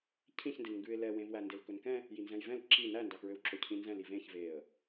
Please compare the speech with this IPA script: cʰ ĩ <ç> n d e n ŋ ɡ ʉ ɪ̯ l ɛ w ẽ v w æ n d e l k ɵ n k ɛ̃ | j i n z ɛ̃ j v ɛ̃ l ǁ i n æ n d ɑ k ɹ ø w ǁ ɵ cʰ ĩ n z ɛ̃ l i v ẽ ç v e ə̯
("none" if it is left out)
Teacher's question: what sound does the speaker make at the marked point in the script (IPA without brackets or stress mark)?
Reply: ç